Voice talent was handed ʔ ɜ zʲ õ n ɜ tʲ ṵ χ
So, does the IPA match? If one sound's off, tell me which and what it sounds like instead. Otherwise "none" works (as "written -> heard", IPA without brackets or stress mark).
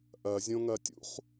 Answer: n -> ŋ